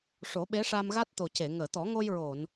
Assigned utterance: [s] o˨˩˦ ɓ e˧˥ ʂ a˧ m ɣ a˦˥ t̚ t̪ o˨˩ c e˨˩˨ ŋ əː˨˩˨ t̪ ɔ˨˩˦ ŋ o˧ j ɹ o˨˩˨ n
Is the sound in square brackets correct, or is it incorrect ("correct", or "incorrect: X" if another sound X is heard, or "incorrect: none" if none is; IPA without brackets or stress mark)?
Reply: incorrect: ʂ